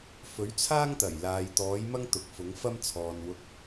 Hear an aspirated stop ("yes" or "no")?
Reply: yes